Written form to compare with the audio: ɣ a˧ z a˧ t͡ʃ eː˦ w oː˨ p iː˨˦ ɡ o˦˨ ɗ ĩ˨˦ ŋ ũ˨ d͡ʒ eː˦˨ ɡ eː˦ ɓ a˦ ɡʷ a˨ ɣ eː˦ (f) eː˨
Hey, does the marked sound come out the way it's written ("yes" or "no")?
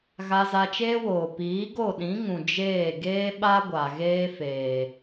yes